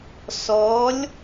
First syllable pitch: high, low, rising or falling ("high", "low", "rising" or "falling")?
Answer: rising